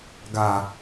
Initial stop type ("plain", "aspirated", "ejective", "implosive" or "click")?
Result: plain